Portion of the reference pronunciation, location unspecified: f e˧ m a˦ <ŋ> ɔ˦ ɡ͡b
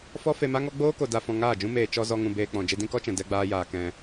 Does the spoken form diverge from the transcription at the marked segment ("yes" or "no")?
no